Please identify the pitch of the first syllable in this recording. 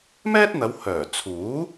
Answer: high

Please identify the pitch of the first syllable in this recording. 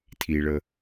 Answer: low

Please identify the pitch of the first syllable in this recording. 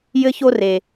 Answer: high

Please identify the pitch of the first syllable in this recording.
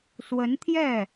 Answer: rising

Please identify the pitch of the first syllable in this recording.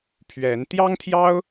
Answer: rising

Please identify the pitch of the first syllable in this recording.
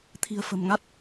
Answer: low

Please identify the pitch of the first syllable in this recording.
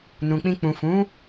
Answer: low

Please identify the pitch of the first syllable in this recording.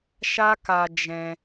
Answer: high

